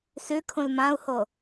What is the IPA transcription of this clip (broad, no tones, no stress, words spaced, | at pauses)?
sʉkʰũl mãu̯ho